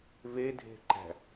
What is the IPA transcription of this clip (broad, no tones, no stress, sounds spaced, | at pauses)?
v e dʱ e̤ ǃ æ̤